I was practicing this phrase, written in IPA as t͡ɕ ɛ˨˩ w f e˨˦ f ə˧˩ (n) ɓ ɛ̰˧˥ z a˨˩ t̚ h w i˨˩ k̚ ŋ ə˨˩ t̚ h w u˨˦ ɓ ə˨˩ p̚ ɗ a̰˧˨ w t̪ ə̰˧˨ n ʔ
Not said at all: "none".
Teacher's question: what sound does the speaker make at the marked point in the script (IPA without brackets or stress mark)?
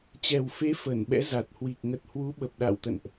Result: n